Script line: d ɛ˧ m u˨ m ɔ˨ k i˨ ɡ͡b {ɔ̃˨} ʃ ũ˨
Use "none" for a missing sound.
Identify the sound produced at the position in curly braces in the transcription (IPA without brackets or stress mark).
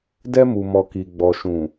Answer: ɔ˨